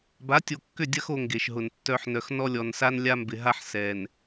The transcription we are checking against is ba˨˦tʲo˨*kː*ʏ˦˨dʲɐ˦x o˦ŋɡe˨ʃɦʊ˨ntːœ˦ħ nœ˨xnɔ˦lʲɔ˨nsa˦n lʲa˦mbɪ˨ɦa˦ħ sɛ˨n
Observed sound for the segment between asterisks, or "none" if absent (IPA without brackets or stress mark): kː